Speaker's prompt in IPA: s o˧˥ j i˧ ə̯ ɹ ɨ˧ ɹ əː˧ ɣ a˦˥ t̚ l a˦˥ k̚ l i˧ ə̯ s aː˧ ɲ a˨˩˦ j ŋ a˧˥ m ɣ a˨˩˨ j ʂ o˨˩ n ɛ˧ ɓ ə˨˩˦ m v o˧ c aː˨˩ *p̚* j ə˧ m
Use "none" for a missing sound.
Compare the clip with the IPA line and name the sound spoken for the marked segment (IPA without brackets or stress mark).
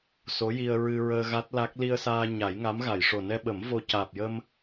p̚